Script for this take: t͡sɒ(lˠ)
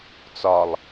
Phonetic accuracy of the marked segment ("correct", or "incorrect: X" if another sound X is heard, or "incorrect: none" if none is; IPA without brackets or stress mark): correct